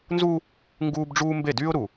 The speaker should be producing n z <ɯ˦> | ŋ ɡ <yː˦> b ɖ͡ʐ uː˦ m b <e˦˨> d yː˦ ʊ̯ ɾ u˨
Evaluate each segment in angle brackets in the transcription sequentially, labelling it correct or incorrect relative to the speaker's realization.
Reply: incorrect, incorrect, correct

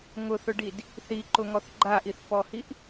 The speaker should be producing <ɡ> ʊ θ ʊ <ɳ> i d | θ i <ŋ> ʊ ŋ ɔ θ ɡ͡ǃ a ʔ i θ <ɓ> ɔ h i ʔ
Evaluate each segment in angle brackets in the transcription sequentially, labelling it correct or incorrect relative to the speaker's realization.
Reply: incorrect, incorrect, incorrect, incorrect

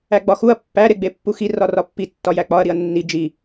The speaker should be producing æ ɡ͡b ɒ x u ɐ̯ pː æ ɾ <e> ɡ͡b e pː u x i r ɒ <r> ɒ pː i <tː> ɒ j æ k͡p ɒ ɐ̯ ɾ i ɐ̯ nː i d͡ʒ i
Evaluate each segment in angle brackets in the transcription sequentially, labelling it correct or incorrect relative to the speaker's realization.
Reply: correct, correct, correct

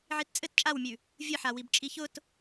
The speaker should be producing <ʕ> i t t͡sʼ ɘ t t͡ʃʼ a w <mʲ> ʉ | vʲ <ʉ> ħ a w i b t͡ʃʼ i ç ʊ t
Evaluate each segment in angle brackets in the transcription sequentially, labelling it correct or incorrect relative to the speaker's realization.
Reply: correct, correct, incorrect

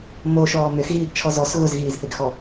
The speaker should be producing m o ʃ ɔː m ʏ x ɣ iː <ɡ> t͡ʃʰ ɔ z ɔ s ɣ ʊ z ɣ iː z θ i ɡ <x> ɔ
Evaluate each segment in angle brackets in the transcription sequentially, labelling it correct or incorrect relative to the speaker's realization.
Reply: correct, correct

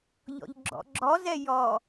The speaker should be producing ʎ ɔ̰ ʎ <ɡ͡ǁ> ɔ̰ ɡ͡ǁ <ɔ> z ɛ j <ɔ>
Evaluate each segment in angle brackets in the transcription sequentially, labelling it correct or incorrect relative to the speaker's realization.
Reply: correct, correct, correct

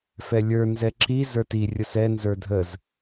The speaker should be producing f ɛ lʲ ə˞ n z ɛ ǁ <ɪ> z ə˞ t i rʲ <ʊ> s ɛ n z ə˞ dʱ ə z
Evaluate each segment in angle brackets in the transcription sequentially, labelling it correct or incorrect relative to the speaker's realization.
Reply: incorrect, correct

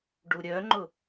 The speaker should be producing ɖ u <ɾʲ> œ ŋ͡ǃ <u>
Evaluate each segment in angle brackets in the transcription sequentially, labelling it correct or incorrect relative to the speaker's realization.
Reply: correct, incorrect

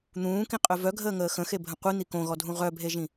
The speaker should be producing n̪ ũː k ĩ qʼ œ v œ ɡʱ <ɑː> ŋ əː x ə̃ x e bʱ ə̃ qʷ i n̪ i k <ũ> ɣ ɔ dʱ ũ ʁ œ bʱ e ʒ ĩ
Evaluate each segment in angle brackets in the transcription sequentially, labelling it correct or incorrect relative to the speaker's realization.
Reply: incorrect, incorrect

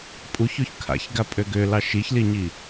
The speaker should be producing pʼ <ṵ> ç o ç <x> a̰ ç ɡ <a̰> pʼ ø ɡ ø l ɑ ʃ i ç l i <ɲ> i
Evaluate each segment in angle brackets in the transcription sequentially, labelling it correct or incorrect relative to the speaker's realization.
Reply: incorrect, incorrect, incorrect, correct

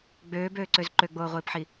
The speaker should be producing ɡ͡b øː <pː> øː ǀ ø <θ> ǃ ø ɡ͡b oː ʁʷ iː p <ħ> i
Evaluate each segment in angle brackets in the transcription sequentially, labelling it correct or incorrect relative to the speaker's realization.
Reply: incorrect, incorrect, correct

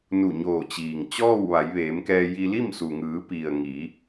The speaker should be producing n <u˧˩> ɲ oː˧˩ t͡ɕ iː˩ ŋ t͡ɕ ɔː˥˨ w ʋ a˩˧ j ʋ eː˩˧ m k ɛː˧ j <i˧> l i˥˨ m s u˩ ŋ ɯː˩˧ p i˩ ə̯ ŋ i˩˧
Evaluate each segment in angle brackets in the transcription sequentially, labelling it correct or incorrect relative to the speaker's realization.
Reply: correct, correct

